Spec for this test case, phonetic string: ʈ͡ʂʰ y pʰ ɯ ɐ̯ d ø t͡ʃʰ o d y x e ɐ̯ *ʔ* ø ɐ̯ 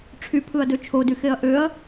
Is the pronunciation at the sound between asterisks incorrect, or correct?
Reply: correct